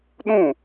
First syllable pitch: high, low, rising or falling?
falling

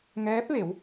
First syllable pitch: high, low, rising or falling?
rising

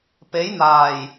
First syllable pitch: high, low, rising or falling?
rising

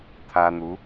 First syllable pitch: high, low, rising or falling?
high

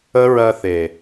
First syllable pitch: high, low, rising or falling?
high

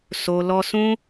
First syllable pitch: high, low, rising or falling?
low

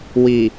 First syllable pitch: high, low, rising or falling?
low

